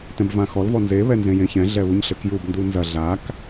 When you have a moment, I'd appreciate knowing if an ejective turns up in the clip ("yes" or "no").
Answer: no